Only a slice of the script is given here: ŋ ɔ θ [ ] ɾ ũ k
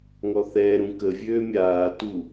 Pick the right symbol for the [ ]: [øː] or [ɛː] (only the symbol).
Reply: ɛː